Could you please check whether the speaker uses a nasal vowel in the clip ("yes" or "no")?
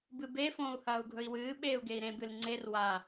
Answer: yes